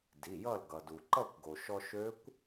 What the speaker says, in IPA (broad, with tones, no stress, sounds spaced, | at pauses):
d i˩˧˩ j ʌ˥˨ l ɡ ʌ˩ d u˩ ǃ ʌ˥˨ kʷ ɡ o˩ ʃ ɔ˧ ʃ ø˦˥ kʷ